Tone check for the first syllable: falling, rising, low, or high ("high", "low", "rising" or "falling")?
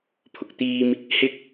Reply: low